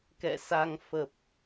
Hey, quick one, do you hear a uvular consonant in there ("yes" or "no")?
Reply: no